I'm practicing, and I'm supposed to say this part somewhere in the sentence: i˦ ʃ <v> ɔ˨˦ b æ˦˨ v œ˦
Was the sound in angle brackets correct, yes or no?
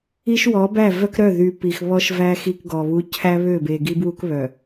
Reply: no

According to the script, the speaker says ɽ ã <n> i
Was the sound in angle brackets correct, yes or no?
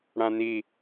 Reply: yes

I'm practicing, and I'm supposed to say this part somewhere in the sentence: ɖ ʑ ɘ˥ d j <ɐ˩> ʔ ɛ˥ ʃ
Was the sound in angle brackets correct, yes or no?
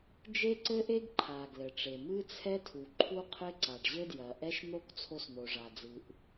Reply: yes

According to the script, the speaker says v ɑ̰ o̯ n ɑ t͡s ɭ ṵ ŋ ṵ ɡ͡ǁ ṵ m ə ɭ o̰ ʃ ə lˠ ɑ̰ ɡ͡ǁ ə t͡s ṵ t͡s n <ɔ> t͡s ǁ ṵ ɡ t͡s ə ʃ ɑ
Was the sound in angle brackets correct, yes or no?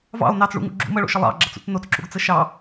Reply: no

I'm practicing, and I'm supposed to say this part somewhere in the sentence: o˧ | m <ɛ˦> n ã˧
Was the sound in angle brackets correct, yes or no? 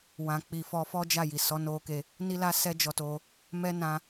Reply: yes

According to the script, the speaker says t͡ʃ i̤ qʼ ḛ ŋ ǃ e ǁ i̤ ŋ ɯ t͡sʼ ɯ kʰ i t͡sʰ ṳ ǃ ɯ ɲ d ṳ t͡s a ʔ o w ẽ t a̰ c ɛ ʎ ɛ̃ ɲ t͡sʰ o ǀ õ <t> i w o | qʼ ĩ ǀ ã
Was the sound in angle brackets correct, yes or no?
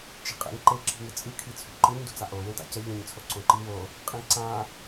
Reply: no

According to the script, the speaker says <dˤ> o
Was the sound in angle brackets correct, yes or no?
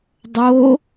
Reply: yes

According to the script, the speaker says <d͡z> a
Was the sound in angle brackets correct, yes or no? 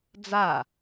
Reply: yes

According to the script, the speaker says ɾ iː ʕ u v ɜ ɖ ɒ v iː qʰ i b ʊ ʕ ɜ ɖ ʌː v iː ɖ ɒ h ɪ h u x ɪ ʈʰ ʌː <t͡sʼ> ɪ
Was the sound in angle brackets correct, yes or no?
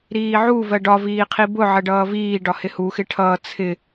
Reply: no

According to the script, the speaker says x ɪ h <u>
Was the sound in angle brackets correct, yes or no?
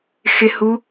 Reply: yes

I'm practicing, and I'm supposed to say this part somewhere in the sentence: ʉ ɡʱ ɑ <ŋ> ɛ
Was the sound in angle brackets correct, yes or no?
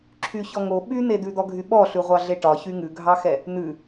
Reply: no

